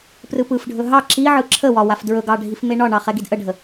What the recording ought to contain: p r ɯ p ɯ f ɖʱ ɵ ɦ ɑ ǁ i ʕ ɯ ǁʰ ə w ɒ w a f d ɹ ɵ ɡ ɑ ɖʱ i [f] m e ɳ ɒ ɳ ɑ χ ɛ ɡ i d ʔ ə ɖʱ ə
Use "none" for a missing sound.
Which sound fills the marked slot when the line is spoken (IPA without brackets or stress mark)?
f